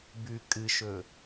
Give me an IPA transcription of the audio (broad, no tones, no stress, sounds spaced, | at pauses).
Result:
b ʉ kʼ ɨ ʃ ɵ